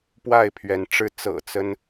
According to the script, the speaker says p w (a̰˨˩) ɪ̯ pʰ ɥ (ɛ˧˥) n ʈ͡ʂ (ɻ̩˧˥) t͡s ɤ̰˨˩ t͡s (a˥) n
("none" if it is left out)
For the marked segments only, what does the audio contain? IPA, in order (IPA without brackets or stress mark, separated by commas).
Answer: a˥˩, ɛ˧˥, ɻ̩˧˥, ə˥